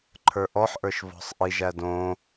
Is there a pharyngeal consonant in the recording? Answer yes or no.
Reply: yes